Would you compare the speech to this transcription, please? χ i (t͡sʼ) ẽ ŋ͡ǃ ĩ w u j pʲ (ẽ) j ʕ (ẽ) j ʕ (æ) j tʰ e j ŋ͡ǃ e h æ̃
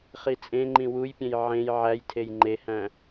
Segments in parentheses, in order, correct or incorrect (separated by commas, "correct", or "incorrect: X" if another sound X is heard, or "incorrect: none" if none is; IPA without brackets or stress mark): correct, correct, correct, correct